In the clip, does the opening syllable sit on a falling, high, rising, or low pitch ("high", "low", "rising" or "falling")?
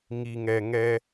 low